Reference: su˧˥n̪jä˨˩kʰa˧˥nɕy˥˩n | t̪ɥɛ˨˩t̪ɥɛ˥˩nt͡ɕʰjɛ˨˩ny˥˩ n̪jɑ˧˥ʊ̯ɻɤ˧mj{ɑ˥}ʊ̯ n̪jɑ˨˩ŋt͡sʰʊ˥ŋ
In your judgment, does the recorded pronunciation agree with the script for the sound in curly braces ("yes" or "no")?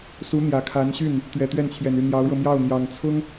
no